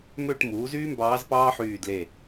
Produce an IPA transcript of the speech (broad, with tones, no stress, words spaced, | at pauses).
mø˦˨ʈ muː˩˥zyː˥mbɑː˧˥z pɑː˥ħyː˦˨dle˦˨